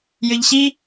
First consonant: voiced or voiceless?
voiced